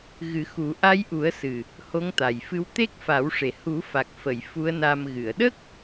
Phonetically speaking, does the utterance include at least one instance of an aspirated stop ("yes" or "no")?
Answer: no